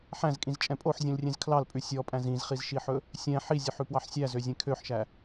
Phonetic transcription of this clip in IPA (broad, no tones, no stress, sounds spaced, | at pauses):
ħ æ̃ z kʼ ĩ z t͡ʃʼ ɛ̃ pʼ o ħ zʲ ũ l rʲ ẽ z kʰ l ɑ l pʼ ʉ sʲ ɔ pʼ æ̃ z ĩ z χ i z ʃ i ħ ɵ | sʲ ɛ̃ ħ i zʲ ɵ ħ ʉ p w ɑ ħ sʲ æ z ø zʲ ẽ kʰ ø ħ ʃ æ